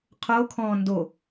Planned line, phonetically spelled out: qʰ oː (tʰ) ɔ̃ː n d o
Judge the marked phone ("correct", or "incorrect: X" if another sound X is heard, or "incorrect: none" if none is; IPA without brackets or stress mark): incorrect: kʰ